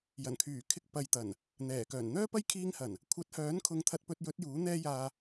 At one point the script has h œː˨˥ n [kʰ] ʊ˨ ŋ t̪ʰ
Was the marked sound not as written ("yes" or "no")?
no